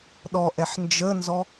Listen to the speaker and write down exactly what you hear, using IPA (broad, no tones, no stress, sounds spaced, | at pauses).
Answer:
ɗ ɔ ʔ ɛ ħ n d͡ʒ ə n z ɔ